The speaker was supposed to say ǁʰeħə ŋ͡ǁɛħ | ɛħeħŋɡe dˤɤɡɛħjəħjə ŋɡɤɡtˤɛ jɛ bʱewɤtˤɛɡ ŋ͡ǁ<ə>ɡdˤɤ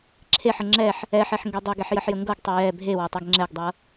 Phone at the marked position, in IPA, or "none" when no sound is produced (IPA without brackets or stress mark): ɛ